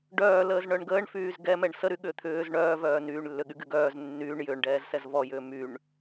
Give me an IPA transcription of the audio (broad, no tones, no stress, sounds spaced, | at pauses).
ɖ œː l əː z ɳ œ ɳ ɡ əː ɳ f yː z ɡ ɛ m ɛ ɳ s ə ɾ y ɠ ʏː t̪ʰ ʏː z ɳ œː v œː n yː ɳ lː ʏ ɠ y ɡ y ɡ œː z nː yː ɳ j ʏː ɳ ɖ ɛː z s ɛ z v ɔ j ʏː m y ɳ